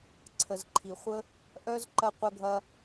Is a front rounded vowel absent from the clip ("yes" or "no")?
no